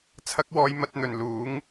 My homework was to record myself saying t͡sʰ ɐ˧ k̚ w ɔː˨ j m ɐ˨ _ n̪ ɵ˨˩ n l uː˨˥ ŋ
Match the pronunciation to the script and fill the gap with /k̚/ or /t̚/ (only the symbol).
t̚